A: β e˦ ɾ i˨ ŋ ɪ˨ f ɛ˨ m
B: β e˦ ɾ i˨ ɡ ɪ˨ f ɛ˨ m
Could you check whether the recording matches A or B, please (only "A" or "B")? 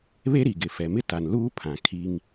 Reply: B